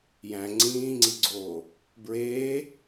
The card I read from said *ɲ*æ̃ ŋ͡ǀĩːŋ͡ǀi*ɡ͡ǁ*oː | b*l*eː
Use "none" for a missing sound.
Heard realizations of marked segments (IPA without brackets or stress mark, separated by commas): j, ɡ͡ǀ, ɹ